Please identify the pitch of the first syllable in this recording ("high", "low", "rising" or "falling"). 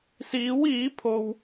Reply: rising